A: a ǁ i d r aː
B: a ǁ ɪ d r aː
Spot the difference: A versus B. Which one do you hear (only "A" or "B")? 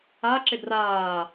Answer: B